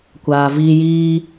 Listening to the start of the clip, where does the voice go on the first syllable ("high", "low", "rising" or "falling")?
low